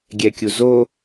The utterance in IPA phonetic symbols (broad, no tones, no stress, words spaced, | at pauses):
ɡʲɛkʲuzo